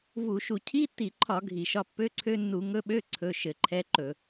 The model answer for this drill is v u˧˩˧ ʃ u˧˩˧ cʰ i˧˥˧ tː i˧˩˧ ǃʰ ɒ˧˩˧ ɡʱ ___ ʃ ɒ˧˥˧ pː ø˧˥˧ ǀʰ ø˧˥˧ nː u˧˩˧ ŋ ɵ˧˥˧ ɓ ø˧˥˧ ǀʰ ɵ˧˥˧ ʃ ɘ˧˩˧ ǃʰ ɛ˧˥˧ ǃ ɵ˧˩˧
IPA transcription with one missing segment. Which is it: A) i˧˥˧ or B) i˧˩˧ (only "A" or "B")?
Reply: B